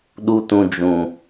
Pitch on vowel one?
high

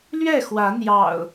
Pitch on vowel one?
falling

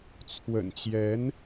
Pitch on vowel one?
low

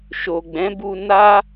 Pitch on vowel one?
low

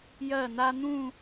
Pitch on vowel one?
falling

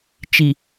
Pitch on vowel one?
low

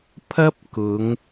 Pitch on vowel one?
high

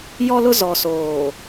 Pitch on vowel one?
high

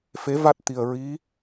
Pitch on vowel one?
rising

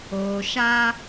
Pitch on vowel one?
low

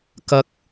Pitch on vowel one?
high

